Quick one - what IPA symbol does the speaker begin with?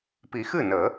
p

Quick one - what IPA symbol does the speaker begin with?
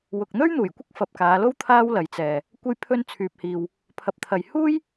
w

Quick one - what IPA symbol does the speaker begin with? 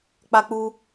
k͡p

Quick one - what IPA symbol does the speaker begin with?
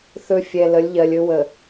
θ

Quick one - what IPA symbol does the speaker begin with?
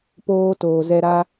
p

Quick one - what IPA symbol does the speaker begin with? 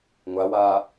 ŋʷ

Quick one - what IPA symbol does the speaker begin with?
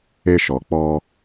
e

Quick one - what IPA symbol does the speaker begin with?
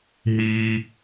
ɦ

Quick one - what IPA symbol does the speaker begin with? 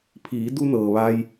pʰ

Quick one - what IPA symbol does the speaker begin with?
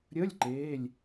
ɾʲ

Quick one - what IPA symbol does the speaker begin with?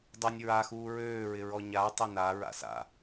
dˤ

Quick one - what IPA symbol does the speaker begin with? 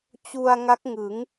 t͡ɕ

